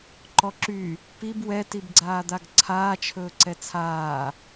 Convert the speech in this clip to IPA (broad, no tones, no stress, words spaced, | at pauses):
ǃɔǁy | pib wɛ tibɡ͡ǀaːd̪aɡǀʰaː t͡ʃʰɵːǀɛt͡sʰaː